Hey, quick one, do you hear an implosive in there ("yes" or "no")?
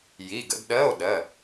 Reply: yes